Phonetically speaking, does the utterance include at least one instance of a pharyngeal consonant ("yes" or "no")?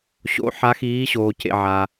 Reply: yes